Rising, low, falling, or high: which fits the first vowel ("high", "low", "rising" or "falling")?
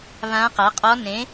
rising